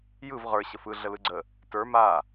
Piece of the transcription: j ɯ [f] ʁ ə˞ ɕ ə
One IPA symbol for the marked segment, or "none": v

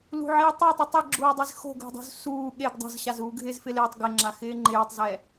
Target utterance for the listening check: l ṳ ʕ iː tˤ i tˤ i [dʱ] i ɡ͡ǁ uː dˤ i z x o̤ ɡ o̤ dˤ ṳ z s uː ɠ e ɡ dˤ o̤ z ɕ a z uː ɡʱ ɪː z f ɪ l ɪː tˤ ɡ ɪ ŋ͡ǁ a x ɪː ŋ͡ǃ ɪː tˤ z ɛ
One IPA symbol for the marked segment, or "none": tˤ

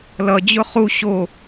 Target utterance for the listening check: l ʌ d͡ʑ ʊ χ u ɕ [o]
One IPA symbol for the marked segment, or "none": o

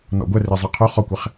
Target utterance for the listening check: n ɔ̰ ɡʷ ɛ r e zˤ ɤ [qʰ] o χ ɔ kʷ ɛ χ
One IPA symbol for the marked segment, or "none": qʰ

